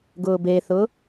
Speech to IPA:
ɡʊːbeθʊː

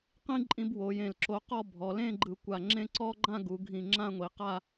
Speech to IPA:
qĩ˥ǃʼĩ˧b wo˩˧jẽ˨˩l ǁo˧qɔ˥˧bʱɔ˩˧ lẽ˥˧ɡ͡ǃɯ˨˩kʷa˨˩ŋ͡ǁẽ˥˧ ǀɔ˥ ɡ͡ǃã˥˧ɡu˩˧ɡʱĩ˨˩ ŋ͡ǁã˥˧ŋʷi˩˧qa˥˧

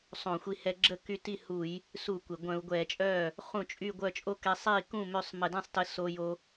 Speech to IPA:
sˤõ˧˩˧xʷi˧hɛ˧ ɡ͡ǁə˥˩ky˧ ti˥˩hu˧˩˧j | suː˧˩˧kʷe˩ ɡʷœ̃˧˩˧u̯ɡʷɛː˧˩˧t͡ʃʼœː˥˩ | χũ˥˩t͡ʃʼy˥˧ɡʷœ˥˧ t͡ʃʼo˥˧kɛ˧ sˤiː˥˩ kũ˥˩ mø˥˧sˤ mə˧˩˧dɛ̃˥˧sˤtə˧ so˧jo˧

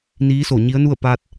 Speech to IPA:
niː˧˥so˧˩ɲi˧˥ə̯nu˥˨ə̯ pa˧t̚

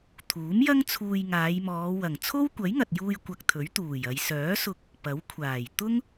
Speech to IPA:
t̪ʰuː˨˥mjɐ˥ŋt͡sʰuː˧j ŋaː˨˧jmɔː˨˧ wɐ˨˩ŋ t͡sʰo˥wkʷɐ˨˥jŋɐ˨t̚juː˧j kʷɐ˧k̚t̪ʰɵ˨˥ɥt̪uː˨˩jɐ˨˧j sœː˨˥sʊ˧k̚ | pɐ˨˥wkʷʰaː˨˩j t̪ʊ˥ŋ

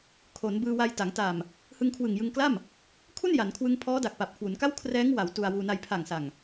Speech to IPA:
kʰo˩˦n bɯː˧wa˧jta˩˦ŋ ta˨˩m | hɯ˧ŋkʰwɯ˨˩ŋjɯ˧ŋkla˥˩m | kʰu˥˩n ja˩˦nkʰwɯ˧ŋpʰɔː˦˥ da˨˩k̚pa˨˩p̚kʰwu˩˦nka˥˩w kʰrɛː˦˥ŋ wa˩˦w tu˧a̯wuː˧ na˧j pʰa˨˩ŋsa˨˩ŋ

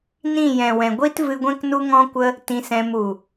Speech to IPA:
nĩ˦˨jɛ̃˨wɛ̃˨ ɡʷi˦tvɨ˧ɡʷɛ̃˦k nu˦ŋɔ̃˦kʷə˦ | tĩ˧sɛ̃˧m u˨

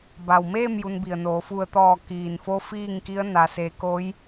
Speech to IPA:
ba˩wmeː˥˨m ju˧nbi˩ə̯noː˩˧ fu˧˩ə̯t̪ɔː˧˩ kiː˩nfo˧ fiː˥˨ŋki˧˥ə̯ na˩se˩˧koː˧˥j

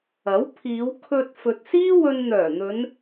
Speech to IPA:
ɐ˨˥w pʰiː˨˧wkʰɵ˧t̚ fɵ˨t̚siː˥ wɵ˧nn̪œː˨˩n̪ɵ˨˧n

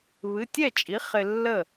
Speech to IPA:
βɨ˩˧˩tʲɛ˥˩t͡ʃʼi˩˥ χɪ˧lːə˥˩

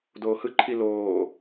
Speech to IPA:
doːhɯǃʰi loː

